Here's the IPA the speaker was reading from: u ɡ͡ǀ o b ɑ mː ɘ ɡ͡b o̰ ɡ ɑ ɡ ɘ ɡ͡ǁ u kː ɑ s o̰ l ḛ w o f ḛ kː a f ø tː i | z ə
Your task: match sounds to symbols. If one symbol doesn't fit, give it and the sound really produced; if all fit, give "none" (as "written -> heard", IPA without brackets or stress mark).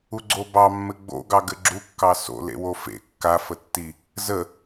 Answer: ø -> ə